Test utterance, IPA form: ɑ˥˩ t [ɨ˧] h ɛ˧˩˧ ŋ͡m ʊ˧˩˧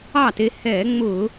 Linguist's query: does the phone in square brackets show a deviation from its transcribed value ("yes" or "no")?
yes